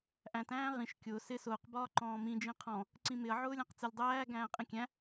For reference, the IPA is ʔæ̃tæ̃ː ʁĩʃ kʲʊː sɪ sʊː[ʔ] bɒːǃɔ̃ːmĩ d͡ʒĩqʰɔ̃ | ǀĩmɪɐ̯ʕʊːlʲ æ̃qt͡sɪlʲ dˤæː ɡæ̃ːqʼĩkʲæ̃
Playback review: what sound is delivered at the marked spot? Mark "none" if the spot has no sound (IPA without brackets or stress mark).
q